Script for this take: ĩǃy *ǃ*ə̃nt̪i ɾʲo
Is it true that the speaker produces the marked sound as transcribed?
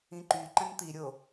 yes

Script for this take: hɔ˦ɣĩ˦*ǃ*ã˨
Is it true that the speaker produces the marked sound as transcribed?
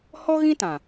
no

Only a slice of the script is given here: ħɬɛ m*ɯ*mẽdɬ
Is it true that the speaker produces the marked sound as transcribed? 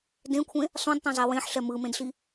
yes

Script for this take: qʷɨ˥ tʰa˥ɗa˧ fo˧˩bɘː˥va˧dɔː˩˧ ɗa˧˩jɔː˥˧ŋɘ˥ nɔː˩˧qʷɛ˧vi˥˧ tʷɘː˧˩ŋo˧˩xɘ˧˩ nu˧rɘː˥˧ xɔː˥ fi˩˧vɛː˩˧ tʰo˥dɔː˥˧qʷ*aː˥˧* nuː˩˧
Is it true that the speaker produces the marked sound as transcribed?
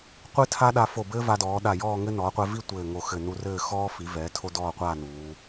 yes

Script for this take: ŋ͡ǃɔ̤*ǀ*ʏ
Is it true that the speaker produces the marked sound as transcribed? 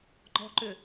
no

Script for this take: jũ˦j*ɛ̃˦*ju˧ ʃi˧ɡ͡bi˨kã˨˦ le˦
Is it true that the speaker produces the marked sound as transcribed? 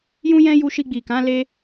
yes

